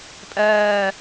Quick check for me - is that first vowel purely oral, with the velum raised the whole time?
yes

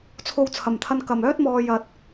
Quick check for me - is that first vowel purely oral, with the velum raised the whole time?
yes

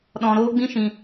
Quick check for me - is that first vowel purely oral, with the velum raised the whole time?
no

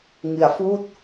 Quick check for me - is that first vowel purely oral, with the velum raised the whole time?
yes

